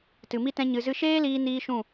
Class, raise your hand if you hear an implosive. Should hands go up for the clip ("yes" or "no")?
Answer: no